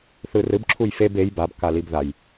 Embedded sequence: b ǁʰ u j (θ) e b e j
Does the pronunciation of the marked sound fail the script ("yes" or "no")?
yes